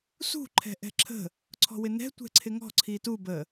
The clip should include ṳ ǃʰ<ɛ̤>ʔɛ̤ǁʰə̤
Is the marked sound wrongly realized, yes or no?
no